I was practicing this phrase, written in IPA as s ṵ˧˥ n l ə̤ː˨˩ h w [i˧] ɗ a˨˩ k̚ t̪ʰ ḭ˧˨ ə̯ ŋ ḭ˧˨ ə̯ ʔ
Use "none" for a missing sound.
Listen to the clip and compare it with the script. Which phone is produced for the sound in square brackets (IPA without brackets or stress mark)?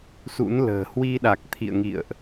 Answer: i˧